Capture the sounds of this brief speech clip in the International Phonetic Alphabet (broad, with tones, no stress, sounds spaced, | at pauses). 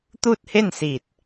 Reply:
t̪ uː˥˨ t̚ h e˥˨ n s iː˧˩ t̚